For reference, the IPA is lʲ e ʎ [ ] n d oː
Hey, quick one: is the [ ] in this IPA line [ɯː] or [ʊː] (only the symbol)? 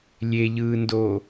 ɯː